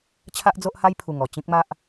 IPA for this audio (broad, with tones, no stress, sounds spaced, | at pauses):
t͡ɕʰ a˦ ʔ d͡z o˦ ʔ h a˦ j pʰ u˨˩ ŋ ɔ˨˩ t͡ɕ ĩ˦ k̚ m a˦ ʔ